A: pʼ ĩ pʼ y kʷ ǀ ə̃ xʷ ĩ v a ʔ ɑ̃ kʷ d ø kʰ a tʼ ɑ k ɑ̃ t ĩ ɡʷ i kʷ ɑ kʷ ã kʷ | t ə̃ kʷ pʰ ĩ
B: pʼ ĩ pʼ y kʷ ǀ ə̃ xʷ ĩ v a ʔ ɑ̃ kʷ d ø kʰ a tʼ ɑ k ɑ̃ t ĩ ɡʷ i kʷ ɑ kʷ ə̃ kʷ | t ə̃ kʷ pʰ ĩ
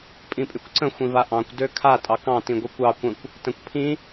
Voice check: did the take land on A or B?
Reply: B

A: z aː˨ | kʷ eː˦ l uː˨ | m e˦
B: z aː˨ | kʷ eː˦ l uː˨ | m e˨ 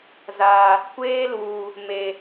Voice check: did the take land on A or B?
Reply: B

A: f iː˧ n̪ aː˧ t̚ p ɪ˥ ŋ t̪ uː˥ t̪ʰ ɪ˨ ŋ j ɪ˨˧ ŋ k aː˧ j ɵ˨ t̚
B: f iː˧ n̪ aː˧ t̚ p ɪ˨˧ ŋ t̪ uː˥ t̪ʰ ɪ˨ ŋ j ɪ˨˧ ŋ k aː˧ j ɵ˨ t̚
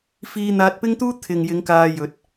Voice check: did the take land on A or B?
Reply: A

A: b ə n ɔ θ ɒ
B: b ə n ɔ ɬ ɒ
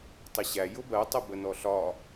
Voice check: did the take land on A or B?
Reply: B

